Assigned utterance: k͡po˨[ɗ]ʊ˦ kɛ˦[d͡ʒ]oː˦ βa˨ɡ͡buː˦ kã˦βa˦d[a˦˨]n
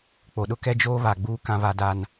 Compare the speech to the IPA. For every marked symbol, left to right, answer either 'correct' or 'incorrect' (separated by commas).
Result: correct, correct, incorrect